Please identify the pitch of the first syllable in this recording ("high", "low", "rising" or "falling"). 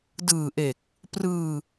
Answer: low